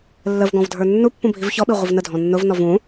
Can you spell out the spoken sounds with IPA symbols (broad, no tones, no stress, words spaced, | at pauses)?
lːəv ɡɔ̃vdʱə˞nːupːũ bʱivçɔɓi ʁʷɪvnədʱɔ̃ nːʊvnɔv ũ